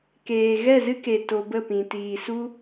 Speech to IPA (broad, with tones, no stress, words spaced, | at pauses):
keː˨ ɣɛ˦˨zɨ˦ke˨ to˧bə˦˨pĩ˨ tiː˨su˦